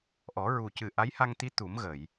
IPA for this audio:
ʔɔ˨˩˦ɹu˨˩cɨ˨˩ ʔa˧˥jha˧ŋt̪i˧˥ t̪u˨˩˦mɣə˨˩˨j

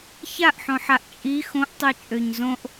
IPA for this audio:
çaʔħõħaʔ t͡ʃʼi xõʔtˤit͡ʃʼøɲ zõʔ

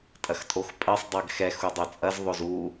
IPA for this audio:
tʼɐxtʼoxpʼɜsˤ dˤɜɡxɛ xudˤot͡sʼɐz ðˤozu

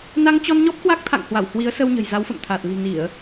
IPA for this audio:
na˧ŋt͡ɕɔ˧n ɲɔ˦˥p̚kwa˦˥k̚t̪ʰa̰˧˨ŋ hwa˧˩whwi˨˦ə̯ sə˧w ɲə̤˨˩jza˨˦wfə̰˧˨mt̪ʰaː˨˩t̚ li̤˨˩ ni˧˩˨ə̯

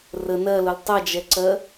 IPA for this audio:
rə nɜlʊl tˤʌd͡ʒɛǀɜ

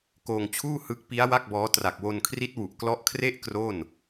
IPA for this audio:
koː˧ŋt͡ɕʰuː˥˩ hɯ˦˥k̚ pi˦˥a̯ wa˥˩k̚bɔː˦˥ tra˨˩k̚wo˧nkʰri˦˥t̚ wu˨˩ʔklɔ˦˥ʔkʰre˥˩ʔ kro˥˩n

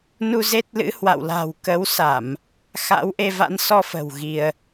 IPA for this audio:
nu˧ze˦˥t̚lɨ̰˧˥ hwa̰˧˨wla̤˨˩w kə˨˦wsa˧˩˨m | xa̰˧˥wʔe˧ va̰˧˥n sɔ˧fə̤˨˩w ɣi˧ə̯

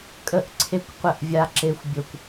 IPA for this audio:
kʼə˧ʔǀʰe˧kʷ qʷə˧ʔ vʲa˨ǁe˨xʷ bʲo˨kʷ

